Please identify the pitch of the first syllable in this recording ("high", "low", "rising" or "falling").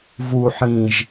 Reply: low